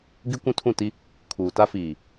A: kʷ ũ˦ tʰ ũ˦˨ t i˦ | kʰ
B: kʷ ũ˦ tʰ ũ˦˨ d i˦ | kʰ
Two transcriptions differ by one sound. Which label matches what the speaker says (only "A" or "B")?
A